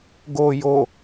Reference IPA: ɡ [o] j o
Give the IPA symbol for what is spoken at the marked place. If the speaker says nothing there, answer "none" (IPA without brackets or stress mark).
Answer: o